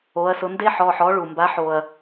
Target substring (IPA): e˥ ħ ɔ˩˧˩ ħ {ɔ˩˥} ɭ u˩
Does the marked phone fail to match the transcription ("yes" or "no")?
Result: no